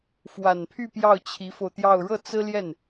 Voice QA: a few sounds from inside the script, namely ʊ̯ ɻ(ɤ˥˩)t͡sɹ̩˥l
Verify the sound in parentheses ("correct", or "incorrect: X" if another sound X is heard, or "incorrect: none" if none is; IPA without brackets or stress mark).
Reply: correct